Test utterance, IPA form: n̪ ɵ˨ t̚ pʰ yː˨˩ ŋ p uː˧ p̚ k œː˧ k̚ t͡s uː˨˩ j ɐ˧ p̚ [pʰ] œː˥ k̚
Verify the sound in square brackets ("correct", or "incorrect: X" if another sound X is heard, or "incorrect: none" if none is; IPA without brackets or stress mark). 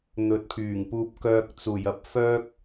incorrect: f